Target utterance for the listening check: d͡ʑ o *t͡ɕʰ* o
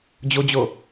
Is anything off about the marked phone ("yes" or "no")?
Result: yes